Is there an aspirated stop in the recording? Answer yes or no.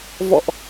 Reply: no